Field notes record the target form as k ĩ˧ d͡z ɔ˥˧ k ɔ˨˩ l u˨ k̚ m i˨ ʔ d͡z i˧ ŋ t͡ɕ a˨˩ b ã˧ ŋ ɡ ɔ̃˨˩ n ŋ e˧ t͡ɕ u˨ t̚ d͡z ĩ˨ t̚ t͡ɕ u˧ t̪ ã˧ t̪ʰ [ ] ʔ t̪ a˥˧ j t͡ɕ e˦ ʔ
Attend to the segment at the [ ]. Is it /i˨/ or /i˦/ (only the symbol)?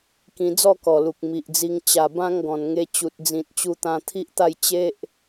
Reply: i˦